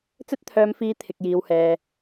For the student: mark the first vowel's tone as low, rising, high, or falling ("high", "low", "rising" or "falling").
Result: high